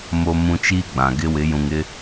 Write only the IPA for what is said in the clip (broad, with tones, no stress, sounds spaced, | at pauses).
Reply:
m o˨ m ũ˨ t͡ʃ i˦ ɡ͡b ã˨ ɡ ɪ˦ w ɪ˨˦ j ũ˨ ŋ ɪ˦